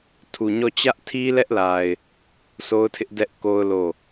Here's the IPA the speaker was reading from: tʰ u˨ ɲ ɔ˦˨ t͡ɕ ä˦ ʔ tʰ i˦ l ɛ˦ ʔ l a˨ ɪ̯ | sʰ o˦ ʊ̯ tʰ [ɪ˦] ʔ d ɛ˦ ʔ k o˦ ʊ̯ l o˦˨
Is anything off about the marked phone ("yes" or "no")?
no